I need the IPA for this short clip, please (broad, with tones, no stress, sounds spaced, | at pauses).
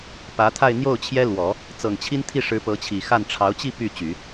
p ä˧˥ t̪ʰ a˥˧ ɪ̯ n̪ j o˥˩ ʊ̯ t͡ɕʰ j ɛ˥ l w ɔ˨˩˦ | t͡s ɤ˨˩ ŋ t͡ɕʰ i˥ n t̪ʰ i˥˩ ʂ ɻ̩˧˥ p ɤ˧˥ t͡ɕʰ i˨˩ x a˥˩ n ʈ͡ʂʰ ɑ˧˥ ʊ̯ t͡ɕ i˥˧ p y˥˩ t͡ɕ y˨˩˦